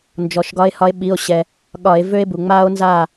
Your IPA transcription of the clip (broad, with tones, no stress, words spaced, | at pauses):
nd͡ʒɔ˩ʃɡɒ˨˦e̯hɒ˨˦e̯ ɓi˩˧˩o̯ ɕɛ˩ | ɠɒ˧˩˧e̯ vø˦˥e̯bu˩ŋ͡maː˦˥o̯nzaː˥˨